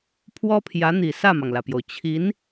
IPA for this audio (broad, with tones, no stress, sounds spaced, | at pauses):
pʰ w ɔ˥ pʰ j ä˧˥ n̪ i˨˩ s ä˥˩ m ɑ˩ ŋ l ä˩ p j o˩ ʊ̯ t͡ɕʰ i˧˥ n